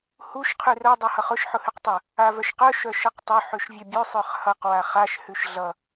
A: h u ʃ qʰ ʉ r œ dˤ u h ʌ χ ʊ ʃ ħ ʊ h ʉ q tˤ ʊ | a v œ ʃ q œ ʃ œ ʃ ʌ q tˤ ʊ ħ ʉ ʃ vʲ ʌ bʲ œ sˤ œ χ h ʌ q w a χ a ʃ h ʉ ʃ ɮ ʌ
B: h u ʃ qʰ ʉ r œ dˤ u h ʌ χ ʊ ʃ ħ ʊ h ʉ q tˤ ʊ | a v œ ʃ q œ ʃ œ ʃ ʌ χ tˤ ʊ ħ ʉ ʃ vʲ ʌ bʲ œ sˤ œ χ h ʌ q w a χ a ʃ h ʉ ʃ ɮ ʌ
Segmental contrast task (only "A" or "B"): A